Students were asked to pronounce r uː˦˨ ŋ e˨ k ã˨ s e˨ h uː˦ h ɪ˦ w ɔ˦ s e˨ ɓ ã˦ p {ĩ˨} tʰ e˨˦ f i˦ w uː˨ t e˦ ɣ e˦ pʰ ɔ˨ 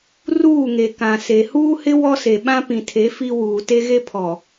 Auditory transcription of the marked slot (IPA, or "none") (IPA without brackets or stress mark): ĩ˨